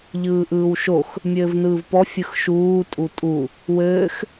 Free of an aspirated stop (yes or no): yes